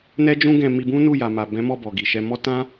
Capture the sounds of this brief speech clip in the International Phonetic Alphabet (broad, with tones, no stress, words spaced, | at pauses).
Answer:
nɛ˦d͡ʒũ˦ɡɛ̃˧ mi˧bũ˦nu˦˨ ja˨ma˨bɛ̃˨˦mɔ˦˨ bɔ˨ɡi˨ʃɛ˧mɔ˦ tã˦